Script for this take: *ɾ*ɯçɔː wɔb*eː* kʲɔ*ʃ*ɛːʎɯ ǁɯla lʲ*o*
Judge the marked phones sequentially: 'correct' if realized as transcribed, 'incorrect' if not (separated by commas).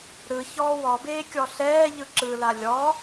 correct, correct, incorrect, incorrect